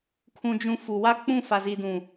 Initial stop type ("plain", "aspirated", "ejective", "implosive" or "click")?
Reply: aspirated